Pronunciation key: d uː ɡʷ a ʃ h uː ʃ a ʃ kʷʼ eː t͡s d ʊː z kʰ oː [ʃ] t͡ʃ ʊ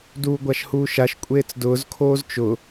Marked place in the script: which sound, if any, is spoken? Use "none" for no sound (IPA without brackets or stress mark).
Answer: z